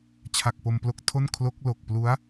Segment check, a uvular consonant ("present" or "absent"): absent